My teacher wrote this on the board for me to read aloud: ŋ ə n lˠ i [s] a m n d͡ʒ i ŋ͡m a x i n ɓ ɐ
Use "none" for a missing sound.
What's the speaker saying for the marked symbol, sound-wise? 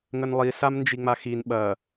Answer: s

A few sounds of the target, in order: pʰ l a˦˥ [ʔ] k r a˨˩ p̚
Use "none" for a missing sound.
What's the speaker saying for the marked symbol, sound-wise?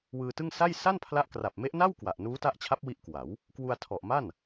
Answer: ʔ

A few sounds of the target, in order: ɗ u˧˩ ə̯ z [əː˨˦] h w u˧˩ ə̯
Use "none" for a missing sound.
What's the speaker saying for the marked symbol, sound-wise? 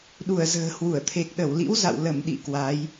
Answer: ə̤ː˨˩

